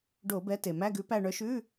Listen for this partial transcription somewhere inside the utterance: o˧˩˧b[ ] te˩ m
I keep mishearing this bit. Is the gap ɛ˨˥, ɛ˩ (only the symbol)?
ɛ˨˥